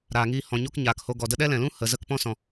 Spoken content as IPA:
ɾ aː˨ ŋ iː˧ h ɔ̃˨ ɲ o˦ k ɲ aː˨ k h o˧ ɡ ɔ˨ d ə˦ ɗ ɛ˦ l ɛ̃˨ l ũ˦ h ə˨ z ə˧ k p ɔ̃˦ s ɔ̃˨

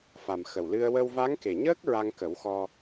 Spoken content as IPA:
f a˨˩ m x ə˨˩ w l ɨ˧ ə̯ w ə˧ w v a˧˥ ŋ k e˨˩ ɲ əː˦˥ k̚ ɹ a˧ ŋ k ə˨˩˦ w x ɔ˧

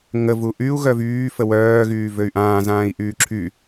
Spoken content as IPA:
ŋ ə v u ʔ y u̯ ɣ œ v yː f ə w œː ɣ yː v ø y̯ ʔ ãː z ãː i̯ ʔ yː ǁʰ y

